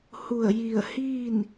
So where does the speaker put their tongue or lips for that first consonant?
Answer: throat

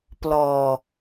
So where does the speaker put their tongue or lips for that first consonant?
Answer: lips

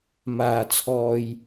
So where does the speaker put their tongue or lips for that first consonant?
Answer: lips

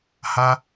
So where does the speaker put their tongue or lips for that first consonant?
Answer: throat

